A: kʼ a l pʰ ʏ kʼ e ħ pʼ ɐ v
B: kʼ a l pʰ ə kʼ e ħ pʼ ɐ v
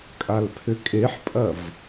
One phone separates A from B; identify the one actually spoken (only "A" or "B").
A